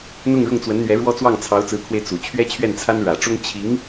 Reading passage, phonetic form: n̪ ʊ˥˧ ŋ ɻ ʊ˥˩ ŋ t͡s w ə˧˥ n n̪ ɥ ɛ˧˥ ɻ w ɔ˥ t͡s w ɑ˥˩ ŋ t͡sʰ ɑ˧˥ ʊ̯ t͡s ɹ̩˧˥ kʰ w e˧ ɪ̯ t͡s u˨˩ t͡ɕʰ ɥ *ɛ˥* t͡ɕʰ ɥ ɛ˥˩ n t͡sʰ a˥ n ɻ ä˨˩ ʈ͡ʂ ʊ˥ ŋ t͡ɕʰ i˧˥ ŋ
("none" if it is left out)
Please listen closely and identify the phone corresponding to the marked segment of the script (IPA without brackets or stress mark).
ɛ˥